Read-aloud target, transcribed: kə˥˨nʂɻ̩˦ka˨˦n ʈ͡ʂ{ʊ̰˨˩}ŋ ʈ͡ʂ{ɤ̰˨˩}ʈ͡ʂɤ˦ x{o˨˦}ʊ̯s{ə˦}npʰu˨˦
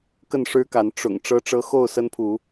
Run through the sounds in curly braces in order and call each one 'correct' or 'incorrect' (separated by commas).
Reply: correct, incorrect, incorrect, correct